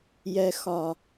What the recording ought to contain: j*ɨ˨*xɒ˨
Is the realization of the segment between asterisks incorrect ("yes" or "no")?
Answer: yes